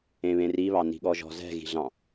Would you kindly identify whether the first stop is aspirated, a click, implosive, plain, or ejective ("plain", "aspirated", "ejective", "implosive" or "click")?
implosive